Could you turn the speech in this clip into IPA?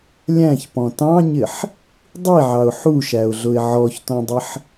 lʲ æ̃ ç p ɔ̃ t ɑ̃ ɲ ɪ ħ | dˤ i ʕ ɑ ʊ̯ ħ u ʃ æ ʊ̯ ɮ ʊ ɪ̯ ʕ ɔ ç t ɔ̃ dˤ ɪ ħ

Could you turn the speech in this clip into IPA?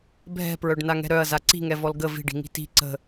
bʱ ɛ̤ p ɹ œ ɖ n a ŋ ɛ̤ ɾ œ ɐ̯ z a ǀ i̤ ŋ ɛ v ɔ l ɡ ə v i̤ ɖ i̤ ŋ i̤ t i̤ ǀ ə̤

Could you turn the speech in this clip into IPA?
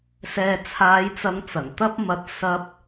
s ɛː˨ t͡sʰ aː˨˧ j t͡s ɐ˨˧ ŋ t͡s ɐ˨˩ ŋ t̪ ɐ˧ p̚ m ɐ˨ t̚ s ɐ˧ p̚

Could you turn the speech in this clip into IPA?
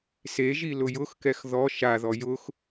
s e ʒ i l ʊ j ʊ x k ɛ x ð ɔ ʃ a ð ɔ j ʊ x

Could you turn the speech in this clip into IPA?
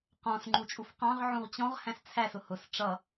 q ɔ̃ s ŋ͡ǃ u t͡ʃʼ u f q ɑ̃ ʁ ʕ ũ ʁ t͡ɕ ɔ̃ ʁ h æ̃ s t͡sʰ æ s ʊ h ʊ s ʈ͡ʂ ʌ

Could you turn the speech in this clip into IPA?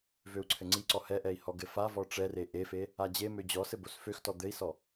v ø u̯ ǀʰ ɘ ŋ͡ǀ i ǀ ɔ h ɛ ʔ ɛ i̯ h ɔ ɡ ɘ f a v ɔ ʈ͡ʂ ɛ r e ʔ e f e | a d͡ʑ e m ø d͡ʑ ɔ s ɘ b o s f ø x t ɔ d̪ ɘ i̯ s ɔ

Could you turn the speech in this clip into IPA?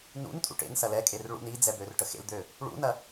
n ṵ n tʼ ṵ ʈ ḛ n s ɐ l ɛ kʼ e r ɭ ṵ n i d͡z ɛ b ø r ʈ ə x ḛ l d̪ ø | ɭ ṵ n ɐ

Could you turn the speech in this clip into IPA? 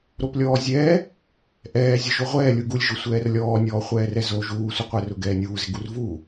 ɾ o p lʲ ɔː zʲ ɛː | ʔ ɛː zʲ ʊ ʒ o ʁʷ ɛː lʲ u ɡ u lʲ ʒ ʊ sʷ ɛː r lʲ ɔː nʲ ɔː χʷ ɛː r ɛ z o ʒ uː sʷ ɪ qʷ ɛ r ʊ ɡ ɛː nʲ uː z ɪ ɡ u r v uː

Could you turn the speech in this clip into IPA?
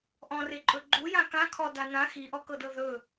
ʔ ɔ̃ r e ǃʼ ɵ ɡ͡ǃ u j ã k ã kʰ ɔ d a n ã x i ʔ ɔ k ɤ d ɤ ð ɵ

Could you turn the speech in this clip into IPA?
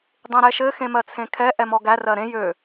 dˤ ẽ ɾ ɛ ʃ ɘ x ẽ m ɜ t͡sʰ ẽ kʰ ɛ ʔ ɛ m ɔ ɡ æ r ɜ ɾ ẽ j ø

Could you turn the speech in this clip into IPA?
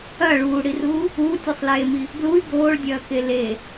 ɐ ɭ uː ɽ i r uː | uː tʲ ʉ sˤ l eː m i | ɡ l u y̯ ɡ oː ɭ dʲ ɐː k e l e

